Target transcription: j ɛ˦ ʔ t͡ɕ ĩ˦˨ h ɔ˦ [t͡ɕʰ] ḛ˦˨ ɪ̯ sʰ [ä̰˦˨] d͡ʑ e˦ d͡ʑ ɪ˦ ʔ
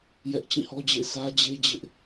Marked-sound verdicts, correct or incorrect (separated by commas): incorrect, incorrect